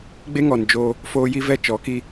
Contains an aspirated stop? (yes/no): no